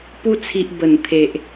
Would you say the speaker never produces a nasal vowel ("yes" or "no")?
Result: yes